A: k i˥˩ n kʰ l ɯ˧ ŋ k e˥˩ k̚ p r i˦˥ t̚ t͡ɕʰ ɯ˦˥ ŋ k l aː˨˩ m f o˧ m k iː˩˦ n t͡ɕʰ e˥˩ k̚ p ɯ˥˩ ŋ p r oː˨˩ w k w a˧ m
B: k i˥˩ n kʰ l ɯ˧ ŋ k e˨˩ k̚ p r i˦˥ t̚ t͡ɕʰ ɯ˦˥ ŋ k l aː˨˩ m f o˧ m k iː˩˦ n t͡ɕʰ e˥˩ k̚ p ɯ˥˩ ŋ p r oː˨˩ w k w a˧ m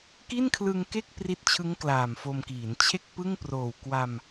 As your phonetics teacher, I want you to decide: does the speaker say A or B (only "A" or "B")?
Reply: A